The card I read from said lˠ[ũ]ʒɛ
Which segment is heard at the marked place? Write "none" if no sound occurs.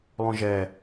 ũ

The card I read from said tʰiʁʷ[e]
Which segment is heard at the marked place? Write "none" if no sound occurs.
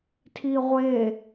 e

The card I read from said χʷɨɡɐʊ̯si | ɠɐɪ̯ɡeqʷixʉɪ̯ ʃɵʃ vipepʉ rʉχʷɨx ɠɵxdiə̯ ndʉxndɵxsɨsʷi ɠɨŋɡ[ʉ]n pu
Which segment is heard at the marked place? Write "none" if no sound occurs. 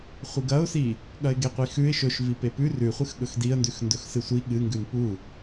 ʉ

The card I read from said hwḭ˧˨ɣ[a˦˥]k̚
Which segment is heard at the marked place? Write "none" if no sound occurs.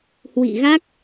a˦˥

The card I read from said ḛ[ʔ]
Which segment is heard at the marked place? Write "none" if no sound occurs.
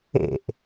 ʔ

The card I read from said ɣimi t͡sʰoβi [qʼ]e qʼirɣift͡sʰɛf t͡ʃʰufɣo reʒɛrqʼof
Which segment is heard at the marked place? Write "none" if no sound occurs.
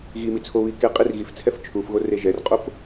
k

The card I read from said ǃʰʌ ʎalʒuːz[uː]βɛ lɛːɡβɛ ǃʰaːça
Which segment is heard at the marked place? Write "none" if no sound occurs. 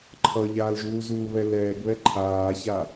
uː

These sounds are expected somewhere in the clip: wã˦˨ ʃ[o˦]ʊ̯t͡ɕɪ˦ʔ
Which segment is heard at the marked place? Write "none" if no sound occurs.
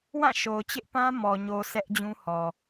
o˨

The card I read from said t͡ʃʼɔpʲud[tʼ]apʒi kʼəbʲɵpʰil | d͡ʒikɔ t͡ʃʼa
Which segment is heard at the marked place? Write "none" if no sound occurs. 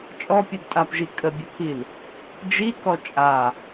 tʼ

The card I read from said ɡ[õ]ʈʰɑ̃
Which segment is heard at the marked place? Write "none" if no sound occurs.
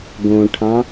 õ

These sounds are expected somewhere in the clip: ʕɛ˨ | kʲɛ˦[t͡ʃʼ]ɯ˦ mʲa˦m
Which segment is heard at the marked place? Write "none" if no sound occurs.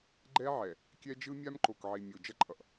d͡ʒ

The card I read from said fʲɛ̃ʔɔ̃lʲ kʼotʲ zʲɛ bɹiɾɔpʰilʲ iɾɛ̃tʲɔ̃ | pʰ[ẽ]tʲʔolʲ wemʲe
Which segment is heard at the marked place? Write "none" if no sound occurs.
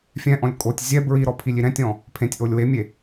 ẽ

